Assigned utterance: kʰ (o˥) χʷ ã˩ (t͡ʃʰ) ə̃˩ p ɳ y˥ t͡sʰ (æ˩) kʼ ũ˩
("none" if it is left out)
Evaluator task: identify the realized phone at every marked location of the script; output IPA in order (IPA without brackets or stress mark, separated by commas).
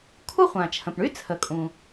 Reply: u˥, t͡ʃʰ, ə˩